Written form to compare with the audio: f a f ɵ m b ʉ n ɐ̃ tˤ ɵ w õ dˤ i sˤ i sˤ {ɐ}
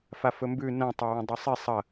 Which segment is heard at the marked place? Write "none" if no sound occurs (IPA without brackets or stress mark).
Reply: ɐ